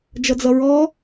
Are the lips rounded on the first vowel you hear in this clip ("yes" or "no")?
no